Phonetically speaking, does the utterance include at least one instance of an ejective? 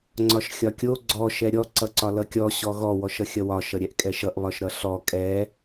yes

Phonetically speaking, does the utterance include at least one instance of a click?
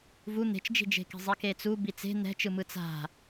no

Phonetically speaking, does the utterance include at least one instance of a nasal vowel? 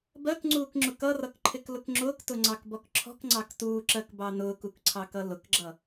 no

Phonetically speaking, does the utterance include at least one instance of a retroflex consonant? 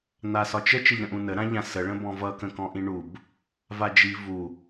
yes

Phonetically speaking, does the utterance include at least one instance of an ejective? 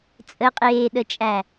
yes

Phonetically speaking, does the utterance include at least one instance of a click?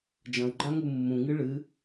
yes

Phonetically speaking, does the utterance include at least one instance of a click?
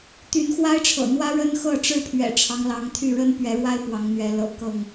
no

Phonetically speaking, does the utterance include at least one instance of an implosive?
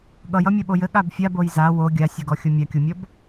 yes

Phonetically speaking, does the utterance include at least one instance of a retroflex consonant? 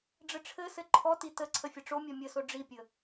yes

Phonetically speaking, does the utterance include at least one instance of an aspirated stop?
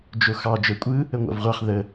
no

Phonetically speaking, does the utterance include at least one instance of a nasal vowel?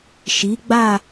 no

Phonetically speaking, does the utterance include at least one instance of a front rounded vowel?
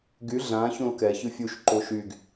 yes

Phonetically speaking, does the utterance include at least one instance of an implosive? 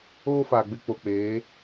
no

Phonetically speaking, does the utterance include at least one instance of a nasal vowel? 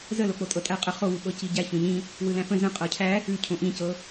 yes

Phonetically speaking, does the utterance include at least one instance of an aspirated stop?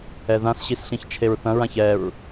yes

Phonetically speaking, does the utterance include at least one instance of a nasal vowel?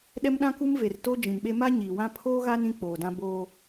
yes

